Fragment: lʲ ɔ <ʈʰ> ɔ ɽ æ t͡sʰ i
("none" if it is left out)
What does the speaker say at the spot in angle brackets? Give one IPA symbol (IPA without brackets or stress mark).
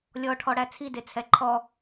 ʈʰ